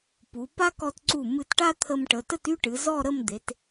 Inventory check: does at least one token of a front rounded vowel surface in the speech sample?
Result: yes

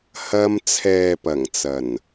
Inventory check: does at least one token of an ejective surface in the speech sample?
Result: no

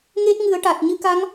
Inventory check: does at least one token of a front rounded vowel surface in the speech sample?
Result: no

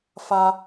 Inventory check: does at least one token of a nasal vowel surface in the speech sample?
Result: no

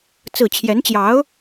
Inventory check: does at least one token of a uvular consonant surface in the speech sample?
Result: no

